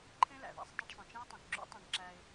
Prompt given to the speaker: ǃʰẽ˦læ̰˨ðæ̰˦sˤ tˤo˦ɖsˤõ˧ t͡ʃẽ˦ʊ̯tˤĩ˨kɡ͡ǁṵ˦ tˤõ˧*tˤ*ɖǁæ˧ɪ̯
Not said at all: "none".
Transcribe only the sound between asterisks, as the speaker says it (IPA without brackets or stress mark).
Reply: none